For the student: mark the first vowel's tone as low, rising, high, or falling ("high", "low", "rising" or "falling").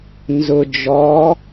low